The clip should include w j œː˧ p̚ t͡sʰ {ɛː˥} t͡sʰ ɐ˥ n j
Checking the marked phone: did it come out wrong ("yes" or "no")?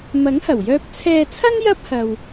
yes